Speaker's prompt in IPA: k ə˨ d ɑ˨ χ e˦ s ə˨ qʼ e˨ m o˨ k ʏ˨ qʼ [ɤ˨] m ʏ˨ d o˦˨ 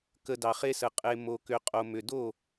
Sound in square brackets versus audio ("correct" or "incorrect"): incorrect